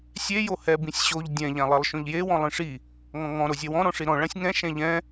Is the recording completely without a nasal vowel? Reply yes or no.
no